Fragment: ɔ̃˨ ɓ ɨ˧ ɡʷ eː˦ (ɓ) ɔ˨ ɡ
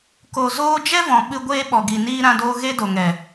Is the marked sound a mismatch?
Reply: no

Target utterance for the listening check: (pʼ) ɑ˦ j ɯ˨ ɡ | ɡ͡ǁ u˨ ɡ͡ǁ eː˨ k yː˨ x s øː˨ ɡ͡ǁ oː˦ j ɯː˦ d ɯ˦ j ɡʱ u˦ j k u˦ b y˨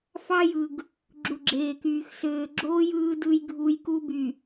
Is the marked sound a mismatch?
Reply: yes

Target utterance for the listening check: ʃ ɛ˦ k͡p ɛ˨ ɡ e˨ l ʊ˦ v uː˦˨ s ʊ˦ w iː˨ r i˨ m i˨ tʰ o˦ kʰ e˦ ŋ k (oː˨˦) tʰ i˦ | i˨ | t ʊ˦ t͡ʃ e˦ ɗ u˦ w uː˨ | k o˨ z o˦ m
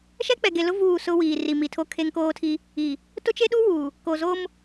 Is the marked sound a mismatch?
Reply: yes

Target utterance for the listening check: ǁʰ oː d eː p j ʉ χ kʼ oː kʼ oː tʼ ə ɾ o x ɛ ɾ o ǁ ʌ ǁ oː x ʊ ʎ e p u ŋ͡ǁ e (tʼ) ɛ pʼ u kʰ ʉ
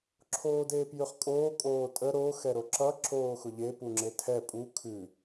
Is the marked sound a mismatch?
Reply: yes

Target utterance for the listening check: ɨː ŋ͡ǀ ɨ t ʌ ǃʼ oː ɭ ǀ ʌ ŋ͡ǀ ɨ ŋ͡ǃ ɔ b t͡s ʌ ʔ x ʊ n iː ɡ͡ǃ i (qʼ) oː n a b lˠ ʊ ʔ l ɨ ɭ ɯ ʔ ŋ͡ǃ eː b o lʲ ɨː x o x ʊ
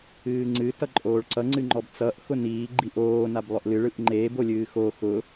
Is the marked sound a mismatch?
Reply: yes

